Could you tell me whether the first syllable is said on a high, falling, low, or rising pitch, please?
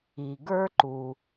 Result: low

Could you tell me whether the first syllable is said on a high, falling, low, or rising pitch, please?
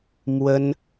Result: high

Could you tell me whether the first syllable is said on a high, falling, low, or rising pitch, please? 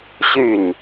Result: falling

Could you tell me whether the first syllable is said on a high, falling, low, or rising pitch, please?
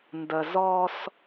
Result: low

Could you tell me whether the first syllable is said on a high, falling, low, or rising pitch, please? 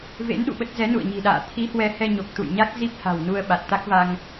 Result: rising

